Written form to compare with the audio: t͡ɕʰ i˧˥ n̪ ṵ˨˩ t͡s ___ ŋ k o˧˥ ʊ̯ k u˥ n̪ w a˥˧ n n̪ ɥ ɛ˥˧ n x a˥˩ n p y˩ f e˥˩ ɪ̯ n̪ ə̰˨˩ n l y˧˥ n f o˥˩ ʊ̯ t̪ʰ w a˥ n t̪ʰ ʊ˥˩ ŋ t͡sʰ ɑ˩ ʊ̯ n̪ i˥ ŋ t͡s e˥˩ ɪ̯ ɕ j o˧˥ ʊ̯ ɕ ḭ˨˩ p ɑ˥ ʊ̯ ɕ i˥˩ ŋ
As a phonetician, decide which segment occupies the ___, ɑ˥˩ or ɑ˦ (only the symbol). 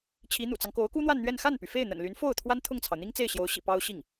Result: ɑ˦